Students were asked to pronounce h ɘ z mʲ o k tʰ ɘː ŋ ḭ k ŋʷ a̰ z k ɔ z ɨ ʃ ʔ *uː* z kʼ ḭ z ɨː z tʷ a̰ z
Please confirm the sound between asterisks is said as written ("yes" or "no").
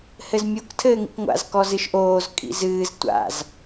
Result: no